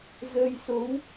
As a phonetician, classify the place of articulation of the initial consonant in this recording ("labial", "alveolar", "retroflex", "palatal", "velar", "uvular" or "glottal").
alveolar